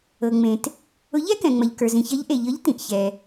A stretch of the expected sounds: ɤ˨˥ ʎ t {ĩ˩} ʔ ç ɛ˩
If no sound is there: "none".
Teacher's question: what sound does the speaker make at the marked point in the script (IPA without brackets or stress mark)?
ĩ˩